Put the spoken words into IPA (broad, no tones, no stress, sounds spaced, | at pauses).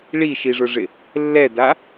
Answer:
ɭ i ʃ i ʐ ʊ ʐ ɪ | lː ɛ d a